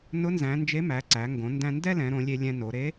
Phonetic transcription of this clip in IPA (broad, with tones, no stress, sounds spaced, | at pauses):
n ʊ˧˥ n z æ̃˩˧ n d͡ʒ e˧˥ m æ˩˧ ǀ æ˩˧ ŋ ɡ õ˩˧ n d æ̃˧ n d ɛ˥ l ɛ̃˩˧ ɾ õ˩˧ lʲ e˧ lʲ ɛ̃˧ n o˩˧ ɾ e˧˥